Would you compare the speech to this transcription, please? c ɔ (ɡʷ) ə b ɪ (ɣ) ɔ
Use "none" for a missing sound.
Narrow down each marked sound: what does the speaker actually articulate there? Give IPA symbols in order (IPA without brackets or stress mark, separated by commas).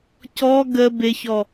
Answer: ɡ, ç